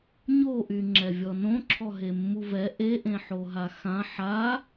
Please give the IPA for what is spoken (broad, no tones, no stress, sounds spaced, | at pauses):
ɲ o ʔ y ŋ͡ǁ ɛ vʲ ɔ n õ ǁʰ ɔ ɦ e mː u v ɛ ʔ e ʔ ẽ ħ o ɦ a x ã ħ a